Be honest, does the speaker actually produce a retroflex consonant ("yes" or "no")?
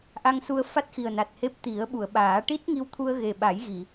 yes